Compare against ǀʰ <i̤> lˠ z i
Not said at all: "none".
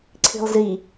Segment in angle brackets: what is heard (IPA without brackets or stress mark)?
i̤